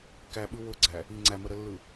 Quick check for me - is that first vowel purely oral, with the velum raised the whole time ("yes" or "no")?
yes